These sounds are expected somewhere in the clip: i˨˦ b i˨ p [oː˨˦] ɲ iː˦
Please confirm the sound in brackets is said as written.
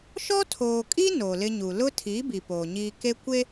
no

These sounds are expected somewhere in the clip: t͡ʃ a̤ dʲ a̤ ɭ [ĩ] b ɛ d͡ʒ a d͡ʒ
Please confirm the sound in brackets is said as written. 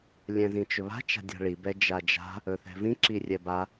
no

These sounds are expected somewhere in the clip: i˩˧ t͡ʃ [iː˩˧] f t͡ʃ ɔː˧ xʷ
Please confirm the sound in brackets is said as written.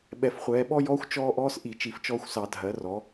no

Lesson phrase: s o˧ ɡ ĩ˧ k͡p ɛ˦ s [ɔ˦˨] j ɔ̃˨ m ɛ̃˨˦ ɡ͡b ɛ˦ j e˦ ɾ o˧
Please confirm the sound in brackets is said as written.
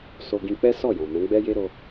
yes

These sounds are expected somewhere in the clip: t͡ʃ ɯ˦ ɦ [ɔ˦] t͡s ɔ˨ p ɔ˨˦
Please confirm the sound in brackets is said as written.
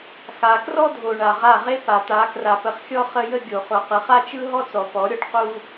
yes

